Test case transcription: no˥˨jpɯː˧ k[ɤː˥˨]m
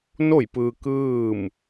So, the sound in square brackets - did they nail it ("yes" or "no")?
no